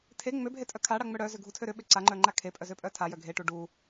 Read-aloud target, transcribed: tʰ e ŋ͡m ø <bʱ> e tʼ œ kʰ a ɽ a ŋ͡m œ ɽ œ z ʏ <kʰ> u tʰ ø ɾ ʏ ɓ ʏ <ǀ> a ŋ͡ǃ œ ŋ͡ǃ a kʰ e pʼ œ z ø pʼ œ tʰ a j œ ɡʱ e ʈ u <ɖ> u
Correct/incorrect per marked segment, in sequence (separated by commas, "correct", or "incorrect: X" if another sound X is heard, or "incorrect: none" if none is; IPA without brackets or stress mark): correct, incorrect: ɡʱ, correct, correct